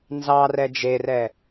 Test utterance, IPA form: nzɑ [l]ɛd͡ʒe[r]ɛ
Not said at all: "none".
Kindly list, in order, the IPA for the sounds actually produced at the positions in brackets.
r, r

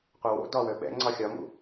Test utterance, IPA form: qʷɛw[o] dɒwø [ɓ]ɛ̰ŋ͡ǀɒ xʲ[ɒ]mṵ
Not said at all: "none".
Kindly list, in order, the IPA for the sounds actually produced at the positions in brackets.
o̰, ɓ, ɒ

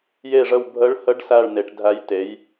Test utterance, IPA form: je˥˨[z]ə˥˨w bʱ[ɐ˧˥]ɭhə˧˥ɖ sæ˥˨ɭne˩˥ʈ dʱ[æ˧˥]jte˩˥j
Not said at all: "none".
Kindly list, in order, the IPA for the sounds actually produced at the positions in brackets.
ʐ, ə˧˥, æ˧˥

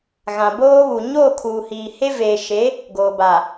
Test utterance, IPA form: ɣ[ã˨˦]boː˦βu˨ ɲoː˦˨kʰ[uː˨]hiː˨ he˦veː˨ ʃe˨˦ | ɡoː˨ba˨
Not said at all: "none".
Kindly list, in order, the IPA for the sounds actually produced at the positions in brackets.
ã˨, uː˨

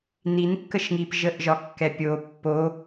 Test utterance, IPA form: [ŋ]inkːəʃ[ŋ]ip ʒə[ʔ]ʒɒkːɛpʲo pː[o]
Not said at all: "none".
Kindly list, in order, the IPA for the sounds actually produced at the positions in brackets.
n, ŋ, ʔ, o

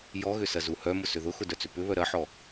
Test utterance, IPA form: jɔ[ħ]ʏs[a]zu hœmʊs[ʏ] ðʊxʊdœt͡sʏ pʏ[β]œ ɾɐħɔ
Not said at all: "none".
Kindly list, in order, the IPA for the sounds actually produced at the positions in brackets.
ɣ, ɐ, ʏ, β

